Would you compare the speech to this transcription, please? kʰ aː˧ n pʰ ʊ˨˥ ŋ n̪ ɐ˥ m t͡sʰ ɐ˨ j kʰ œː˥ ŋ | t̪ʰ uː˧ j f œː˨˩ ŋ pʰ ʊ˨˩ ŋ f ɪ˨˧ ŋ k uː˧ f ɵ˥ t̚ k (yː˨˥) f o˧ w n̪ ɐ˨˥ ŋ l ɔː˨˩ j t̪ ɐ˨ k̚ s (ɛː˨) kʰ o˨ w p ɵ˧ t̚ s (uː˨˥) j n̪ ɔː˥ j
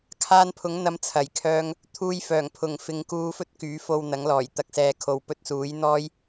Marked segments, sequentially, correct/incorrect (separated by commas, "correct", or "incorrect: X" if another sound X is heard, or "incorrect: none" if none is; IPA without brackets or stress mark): correct, correct, correct